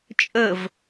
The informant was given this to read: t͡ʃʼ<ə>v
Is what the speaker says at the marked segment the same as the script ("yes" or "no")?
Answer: yes